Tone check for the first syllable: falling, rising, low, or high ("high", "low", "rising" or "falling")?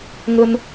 high